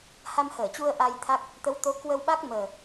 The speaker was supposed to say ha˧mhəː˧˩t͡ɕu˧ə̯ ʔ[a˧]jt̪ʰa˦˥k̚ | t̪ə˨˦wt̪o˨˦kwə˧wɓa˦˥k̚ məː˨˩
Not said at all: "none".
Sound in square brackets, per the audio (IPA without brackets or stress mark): a˧